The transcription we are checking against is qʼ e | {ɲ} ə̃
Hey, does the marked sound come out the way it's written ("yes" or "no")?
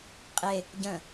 no